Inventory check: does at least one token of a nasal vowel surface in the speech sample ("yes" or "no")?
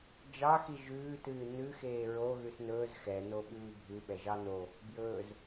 no